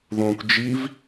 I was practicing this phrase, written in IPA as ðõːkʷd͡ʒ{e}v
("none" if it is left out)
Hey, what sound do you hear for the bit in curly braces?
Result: i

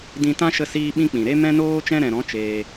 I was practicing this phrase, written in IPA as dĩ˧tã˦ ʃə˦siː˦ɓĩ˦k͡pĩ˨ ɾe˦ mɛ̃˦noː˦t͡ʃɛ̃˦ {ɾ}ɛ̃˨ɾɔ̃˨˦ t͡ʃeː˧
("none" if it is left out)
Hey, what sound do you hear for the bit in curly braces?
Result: ɾ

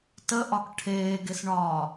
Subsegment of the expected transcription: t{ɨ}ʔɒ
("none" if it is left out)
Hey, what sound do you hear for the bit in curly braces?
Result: ə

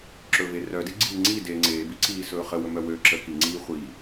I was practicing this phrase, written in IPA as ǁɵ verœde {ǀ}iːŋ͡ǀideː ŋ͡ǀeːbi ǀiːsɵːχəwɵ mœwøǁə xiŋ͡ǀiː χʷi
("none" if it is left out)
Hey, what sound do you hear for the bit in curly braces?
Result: ɡ͡ǀ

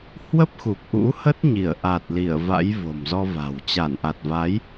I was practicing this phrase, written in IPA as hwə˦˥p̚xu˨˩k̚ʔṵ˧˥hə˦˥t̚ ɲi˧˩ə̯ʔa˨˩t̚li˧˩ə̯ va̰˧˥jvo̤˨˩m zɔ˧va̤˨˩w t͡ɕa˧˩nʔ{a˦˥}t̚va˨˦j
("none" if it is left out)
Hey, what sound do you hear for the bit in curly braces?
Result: a˨˩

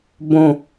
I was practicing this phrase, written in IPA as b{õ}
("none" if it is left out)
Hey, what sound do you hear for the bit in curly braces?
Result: õ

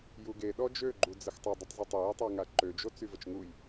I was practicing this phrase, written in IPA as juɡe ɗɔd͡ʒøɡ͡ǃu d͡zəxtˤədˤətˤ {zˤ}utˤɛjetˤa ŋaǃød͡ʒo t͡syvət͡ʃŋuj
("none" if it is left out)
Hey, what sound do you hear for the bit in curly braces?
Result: zˤ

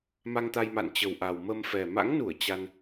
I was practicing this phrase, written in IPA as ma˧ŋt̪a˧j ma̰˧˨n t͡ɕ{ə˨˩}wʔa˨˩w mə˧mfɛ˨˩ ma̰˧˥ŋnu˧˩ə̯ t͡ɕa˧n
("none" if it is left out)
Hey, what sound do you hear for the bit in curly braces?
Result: ə˨˩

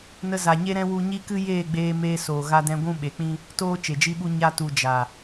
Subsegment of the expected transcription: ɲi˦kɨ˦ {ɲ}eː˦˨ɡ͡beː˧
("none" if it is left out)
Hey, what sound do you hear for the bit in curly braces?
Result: j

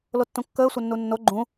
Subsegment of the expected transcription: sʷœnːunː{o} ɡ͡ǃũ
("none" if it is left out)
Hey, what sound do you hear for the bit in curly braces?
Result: o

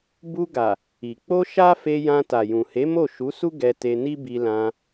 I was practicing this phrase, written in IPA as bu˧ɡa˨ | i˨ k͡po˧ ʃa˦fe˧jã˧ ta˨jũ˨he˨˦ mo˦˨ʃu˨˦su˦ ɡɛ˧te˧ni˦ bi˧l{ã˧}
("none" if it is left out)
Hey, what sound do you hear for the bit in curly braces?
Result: ã˧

